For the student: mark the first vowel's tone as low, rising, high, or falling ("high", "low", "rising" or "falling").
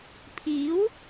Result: rising